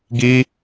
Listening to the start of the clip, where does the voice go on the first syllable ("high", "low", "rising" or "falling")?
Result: high